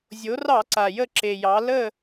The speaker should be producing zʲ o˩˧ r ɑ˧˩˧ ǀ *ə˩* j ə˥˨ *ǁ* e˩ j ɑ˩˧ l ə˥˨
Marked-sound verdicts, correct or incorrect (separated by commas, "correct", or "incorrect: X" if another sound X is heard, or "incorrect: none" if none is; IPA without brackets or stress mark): incorrect: a˩, correct